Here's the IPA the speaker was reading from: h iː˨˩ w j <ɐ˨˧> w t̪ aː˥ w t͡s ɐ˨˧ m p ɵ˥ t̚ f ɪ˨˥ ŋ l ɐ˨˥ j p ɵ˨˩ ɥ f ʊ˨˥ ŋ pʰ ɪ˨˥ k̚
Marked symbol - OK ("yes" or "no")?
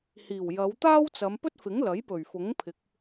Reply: yes